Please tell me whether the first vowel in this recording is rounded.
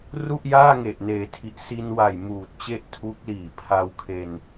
yes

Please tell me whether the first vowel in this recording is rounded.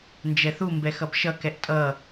no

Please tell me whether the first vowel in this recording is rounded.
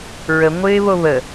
no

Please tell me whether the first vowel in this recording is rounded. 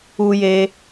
yes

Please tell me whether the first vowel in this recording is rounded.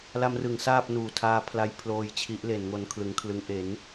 no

